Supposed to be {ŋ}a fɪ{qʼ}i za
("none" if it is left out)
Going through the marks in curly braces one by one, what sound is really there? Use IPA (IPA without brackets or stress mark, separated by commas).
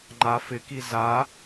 ŋ͡ǃ, k